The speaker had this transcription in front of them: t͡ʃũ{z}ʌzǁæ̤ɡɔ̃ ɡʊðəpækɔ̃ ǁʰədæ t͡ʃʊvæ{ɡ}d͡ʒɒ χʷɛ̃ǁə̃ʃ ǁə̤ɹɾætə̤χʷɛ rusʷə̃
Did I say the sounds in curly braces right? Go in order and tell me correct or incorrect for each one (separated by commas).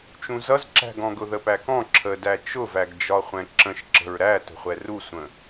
correct, correct